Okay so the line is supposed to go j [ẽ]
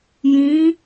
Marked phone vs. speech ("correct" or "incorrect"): incorrect